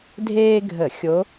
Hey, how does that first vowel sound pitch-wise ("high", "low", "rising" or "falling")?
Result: high